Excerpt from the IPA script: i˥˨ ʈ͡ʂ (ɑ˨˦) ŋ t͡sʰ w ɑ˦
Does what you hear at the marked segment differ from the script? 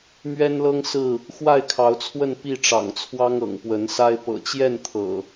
yes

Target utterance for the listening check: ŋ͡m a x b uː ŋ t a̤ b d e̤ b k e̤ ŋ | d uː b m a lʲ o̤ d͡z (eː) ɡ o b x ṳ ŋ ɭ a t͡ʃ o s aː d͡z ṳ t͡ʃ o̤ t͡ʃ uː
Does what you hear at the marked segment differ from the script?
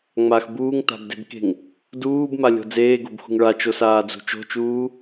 no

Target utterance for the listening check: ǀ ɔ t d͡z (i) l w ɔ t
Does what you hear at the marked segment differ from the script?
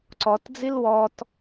no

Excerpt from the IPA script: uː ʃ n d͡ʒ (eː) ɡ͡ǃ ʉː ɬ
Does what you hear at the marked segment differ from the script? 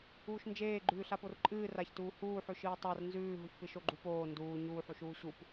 no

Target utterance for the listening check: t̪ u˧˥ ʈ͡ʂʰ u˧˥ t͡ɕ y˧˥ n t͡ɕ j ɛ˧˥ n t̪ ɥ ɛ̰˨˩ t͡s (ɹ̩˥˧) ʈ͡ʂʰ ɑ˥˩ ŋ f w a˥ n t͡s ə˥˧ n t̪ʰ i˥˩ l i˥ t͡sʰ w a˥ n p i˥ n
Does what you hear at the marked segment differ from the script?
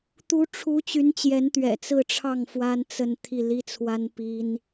no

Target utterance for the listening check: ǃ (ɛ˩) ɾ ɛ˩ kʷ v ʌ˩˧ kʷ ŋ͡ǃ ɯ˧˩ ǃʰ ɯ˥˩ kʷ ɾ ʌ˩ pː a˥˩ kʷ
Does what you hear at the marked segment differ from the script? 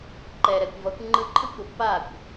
no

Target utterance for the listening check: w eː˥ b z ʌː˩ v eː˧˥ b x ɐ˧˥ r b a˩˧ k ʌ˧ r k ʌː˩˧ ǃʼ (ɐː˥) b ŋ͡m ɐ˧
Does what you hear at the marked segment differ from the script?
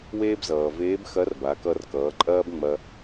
no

